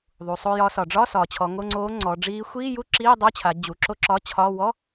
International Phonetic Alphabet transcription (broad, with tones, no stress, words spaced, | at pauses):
ðˤu˩˧sˤo˧˥˧jɒː˧˥sɒ˩˧ ɖ͡ʐɒ˧˥˧ sɒː˩˧t͡ɕʰɔ˩˧ŋo˧˥˧ŋ͡ǀoː˧˥ ŋ͡ǀɔ˩˧ɖ͡ʐiː˧˥ xʷiː˧˥˧ju˥˧ ǁiː˧˥˧dˤo˧˥˧t͡ɕʰa˩˧ d͡ʑu˩˧ǁo˥˧ǁɒ˧˥˧ t͡ɕʰɒː˧˥˧ wɔ˧˥˧